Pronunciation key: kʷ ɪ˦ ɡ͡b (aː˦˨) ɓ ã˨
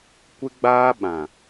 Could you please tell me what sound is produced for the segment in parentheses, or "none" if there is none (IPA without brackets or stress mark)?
aː˦